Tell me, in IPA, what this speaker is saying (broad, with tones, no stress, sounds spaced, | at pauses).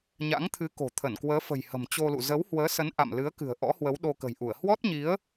ɲ a̰˧˥ ŋ t̪ʰ ɨ˨˦ k o̤˨˩ t̪ʰ ə˧˩ n k w əː˨˦ f ə̤˨˩ j h ə̤˨˩ m t͡ɕ o˧ l ṵ˧˨ z ə˨˦ w h w əː˨˦ s ə˨˦ n ʔ a̰˧˨ m l ɨ˨˦ ə̯ k ɨ̤˨˩ ə̯ ʔ ɔ̰˧˥ h w ə˨˦ w ɗ o˧ k ə̤˨˩ j ʔ u˧˩ ə̯ h w ɔ˦˥ t̚ ɲ i˨˦ ə̯